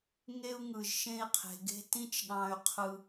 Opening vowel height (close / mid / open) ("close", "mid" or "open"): mid